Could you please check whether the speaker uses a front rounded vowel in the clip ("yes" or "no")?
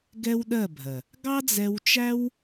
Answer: no